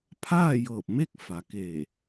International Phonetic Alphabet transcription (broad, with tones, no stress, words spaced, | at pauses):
pʰaː˥˨jɤː˧˩p̚me˥˨k̚ fa˩˧ke˧˩